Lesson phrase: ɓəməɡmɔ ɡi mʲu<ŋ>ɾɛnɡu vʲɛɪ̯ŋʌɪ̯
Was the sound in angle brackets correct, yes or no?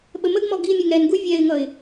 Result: yes